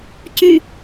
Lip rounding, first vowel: rounded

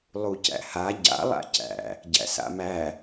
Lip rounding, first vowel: rounded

